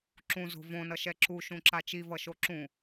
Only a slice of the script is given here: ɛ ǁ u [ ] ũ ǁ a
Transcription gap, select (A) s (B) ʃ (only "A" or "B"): B